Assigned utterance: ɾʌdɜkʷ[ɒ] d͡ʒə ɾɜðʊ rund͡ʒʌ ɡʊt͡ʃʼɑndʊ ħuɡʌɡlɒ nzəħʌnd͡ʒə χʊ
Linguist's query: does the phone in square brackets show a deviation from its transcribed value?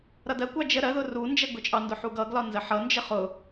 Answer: yes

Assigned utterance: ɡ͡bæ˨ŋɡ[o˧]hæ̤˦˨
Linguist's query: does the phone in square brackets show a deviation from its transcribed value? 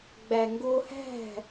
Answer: no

